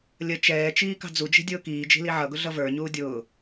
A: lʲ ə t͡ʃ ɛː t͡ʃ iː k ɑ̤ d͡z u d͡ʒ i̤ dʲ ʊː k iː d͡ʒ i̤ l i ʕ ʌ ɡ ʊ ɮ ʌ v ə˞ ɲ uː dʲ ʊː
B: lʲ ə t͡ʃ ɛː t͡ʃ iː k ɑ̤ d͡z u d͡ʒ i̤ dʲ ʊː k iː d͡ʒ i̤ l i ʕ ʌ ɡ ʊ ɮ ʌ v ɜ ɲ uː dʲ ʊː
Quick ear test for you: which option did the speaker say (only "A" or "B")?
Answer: A